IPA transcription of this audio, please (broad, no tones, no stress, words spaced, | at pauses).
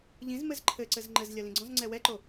ʎĩz mɘzǃʰɘǀɘz ŋ͡ǃɘzlʲɐ lĩɡ͡ǀɔ̃zŋ͡ǀɛ wɛǃo